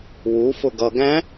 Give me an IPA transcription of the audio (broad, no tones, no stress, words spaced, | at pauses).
wu fʊɡʌ ɡæ̃